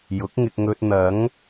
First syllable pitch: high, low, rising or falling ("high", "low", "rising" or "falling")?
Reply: rising